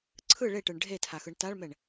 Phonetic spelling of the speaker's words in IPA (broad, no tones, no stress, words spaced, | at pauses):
ǀʰɯ ɭeʈɯɳ ɖʱetʰaxɯɳ taɭmɛɳ